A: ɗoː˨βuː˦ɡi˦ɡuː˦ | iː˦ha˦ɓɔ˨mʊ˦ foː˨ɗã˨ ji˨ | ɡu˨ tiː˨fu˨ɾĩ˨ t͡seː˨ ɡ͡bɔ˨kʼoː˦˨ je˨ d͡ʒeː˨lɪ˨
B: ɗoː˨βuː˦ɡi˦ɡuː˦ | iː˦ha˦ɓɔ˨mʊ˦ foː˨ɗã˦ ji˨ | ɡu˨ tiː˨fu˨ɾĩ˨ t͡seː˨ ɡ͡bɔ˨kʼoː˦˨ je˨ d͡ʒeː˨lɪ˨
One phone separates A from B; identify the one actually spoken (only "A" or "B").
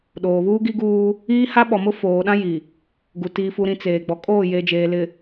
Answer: B